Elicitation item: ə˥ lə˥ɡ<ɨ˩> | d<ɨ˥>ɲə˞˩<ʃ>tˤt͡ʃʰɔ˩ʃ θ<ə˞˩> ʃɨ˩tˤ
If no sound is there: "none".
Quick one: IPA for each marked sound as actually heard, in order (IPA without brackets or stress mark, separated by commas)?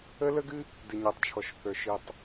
ɨ˥, ɨ˩, none, ə˞˩